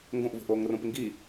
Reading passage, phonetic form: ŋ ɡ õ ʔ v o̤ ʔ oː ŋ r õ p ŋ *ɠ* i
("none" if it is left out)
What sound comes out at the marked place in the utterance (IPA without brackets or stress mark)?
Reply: ɡ